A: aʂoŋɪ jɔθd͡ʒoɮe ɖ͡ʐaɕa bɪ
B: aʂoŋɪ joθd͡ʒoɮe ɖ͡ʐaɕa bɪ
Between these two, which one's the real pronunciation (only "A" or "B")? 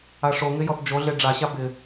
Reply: A